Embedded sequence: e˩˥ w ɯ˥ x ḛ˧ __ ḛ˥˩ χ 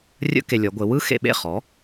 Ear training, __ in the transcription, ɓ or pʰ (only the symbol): ɓ